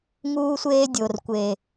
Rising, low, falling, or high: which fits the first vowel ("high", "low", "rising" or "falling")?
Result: high